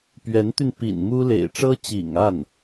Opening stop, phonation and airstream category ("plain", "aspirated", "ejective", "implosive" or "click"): plain